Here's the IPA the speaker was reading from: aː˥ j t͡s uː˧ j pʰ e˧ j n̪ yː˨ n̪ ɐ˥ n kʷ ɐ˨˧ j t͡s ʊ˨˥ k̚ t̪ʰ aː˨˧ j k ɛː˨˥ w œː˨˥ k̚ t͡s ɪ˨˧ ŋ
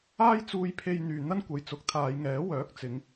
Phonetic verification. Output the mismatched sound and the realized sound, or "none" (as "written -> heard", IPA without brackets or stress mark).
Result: k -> ŋ